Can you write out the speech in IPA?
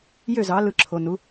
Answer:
j ø˥˨ z ɑ˨˥ l ɯ˧˩ ǁʰ o˩˧˩ n u˨˥

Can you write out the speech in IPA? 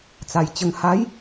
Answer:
t͡s a˨˩ j t͡ɕ ə˧ ŋ h a˨˦ j

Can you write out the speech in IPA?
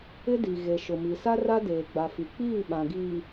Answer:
ɪ˦ d i˨ ɣ e˨ ʃ ʊ˨ m i˨ s a˦ r a˦ d eː˨ ɡ͡b a˨ f i˨ k͡p iː˦˨ ɓ ã˨ ɡ iː˨

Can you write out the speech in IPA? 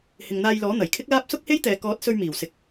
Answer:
h ɪ˨ ŋ n̪ aː˧ j l ɔː˨˥ n̪ ɐ˨˩ j kʰ ɪ˥ k̚ l aː˥ p̚ s ʊ˥ k̚ h e˥ j t̪ ɛː˨ k ɔː˨˥ t̚ s ɵ˧ ɥ m iː˨˩ w s ɪ˨ k̚

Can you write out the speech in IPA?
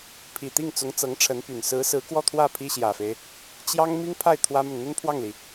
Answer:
pʰ i˨˩ t̪ i˥˩ ŋ t͡s ʊ˧˥ ŋ t͡s ɤ˧˥ ŋ ʈ͡ʂʰ ə˧˥ n p y˨˩ n s ɹ̩˧˥ s ɹ̩˧˥ k w ɔ˥˧ t̪ʰ w ä˥˩ pʰ i˥ ɕ j ä˨˩ f e˦ ɪ̯ | t͡ɕ j ɑ˥ ŋ m i˥ ŋ pʰ a˥˩ ɪ̯ t̪ʰ w ä˥ m ə˨ n n̪ ə˥ n pʰ w ɑ˥˩ ŋ l i˩

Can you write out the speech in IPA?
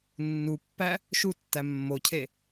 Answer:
nː u pː æ | ʃ u tː æ mː o cʰ e

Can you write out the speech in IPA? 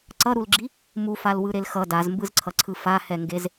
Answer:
ǀ ʌ ɾ u l ɡ͡ǁ i | m u f a l w ɯ ɾ e l x ʌ d a z m b ɯ z ǀʰ ʌ ǀʰ ɯ f a h ɛ ŋ ɡ e z

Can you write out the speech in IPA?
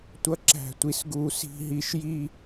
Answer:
tʷ ʌ˦ ǁ æ̤˦˨ tʷ i˦ s ɡ u˦ s i̤˦ ɦ i˦ ʃ j i˦

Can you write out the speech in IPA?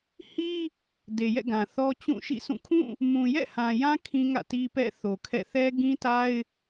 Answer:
h i˦ | d e˨ j ɛ̰˦˨ ɡ ã˨ θ ɔ˦ t͡ɕ ũ˦˨ ʃ ḭ˦˨ s ũ˦˨ kʰ ũ˦˨ | m ũ˨ j ɛ̰˦˨ h ã˨ j ã˦ kʰ ĩ˦ ŋ ä̰˦˨ t i˦ p ɛ̰˦˨ θ o˨ kʰ ɛ̰˦˨ θ ɛ˦ ɡ ĩ˦ t a˦ ɪ̯

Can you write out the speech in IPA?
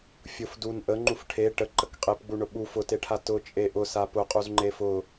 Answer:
fʲ ʊ f d u n ʔ ə ŋ͡ǃ u f ʈʰ e ʈ ə ǃ ə k qʼ e p ɡ͡b u ɳ ʊ ɓ u f ʊ t e ʈʰ a t ʊ t͡ʃʼ e ʔ ʊ s a p ʊ qʼ u z ŋ͡ǃ e f ʊ

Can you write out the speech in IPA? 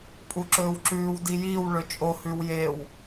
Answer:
pʼ u ǁ ɵː w ǁ ʉː w d i j i w ɭ ɵ t͡ʃʼ o h ʉ w j e w

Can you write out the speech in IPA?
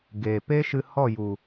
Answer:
ɡ e˨ p e˦ ʃ ɨ˧ h ɔ˦˨ j u˨

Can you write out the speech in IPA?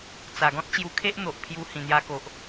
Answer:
t͡s a˨˩ ɡ ɔ̃˦ t̚ t͡ɕ j u˧ kʰ e˦ ʔ n̪ o˨ ʔ pʰ j u˧ h ĩ˨˩ n̪ j a˧ k o˨ ʔ

